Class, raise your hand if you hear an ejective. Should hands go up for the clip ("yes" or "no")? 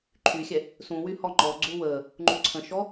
no